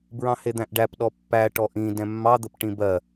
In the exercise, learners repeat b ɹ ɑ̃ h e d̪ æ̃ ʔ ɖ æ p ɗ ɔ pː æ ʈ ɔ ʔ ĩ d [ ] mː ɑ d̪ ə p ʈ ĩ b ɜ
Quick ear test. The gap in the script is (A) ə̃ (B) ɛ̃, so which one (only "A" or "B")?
B